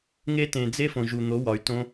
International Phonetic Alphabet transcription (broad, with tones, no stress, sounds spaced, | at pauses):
ŋ e˦ t ẽ˨ d͡z e˦ f õ˨ ʒ u˨ n̪ o˨˦ w ɒ˨ y̯ t õ˦